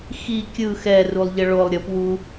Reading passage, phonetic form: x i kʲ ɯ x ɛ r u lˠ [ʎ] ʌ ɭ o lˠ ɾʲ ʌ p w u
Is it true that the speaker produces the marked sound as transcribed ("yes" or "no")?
yes